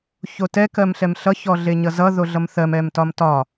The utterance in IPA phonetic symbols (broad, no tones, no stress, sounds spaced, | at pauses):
ç o t ɛ k ɜ m ɬ ɛ m ɬ ʌ ç ɔ ɮ e ɲ ʌ z ʌ ð o ɮ ʌ m θ ɜ m ɛ m t ɒ m t ɒ